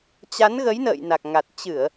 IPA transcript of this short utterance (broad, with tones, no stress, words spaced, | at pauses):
t͡ɕa˨˦nɣə˨˦jnə̰ː˧˨j na˨˩k̚ŋa˨˩t̚ t͡ɕɨ˧˩˨ə̯